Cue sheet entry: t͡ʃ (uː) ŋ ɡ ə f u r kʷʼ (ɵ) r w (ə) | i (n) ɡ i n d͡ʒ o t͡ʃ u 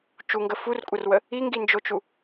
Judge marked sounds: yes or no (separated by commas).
no, no, yes, no